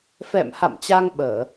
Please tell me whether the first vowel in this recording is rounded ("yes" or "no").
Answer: no